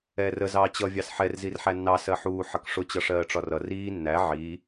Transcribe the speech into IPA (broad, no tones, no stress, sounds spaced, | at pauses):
ɛː r ə z ɑː t͡ɕ ʌ vʲ ɑ s ħ ɛ r z i r ħ æ nː ɑ s ɜ ħ uː ħ ʌ k ʂ ʊ t͡ɕ ʌ ʂ ɜː ʈ͡ʂ ɒ r ʌ r iː nː æ ʕ iː